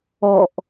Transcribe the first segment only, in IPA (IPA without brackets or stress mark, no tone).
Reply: ɔ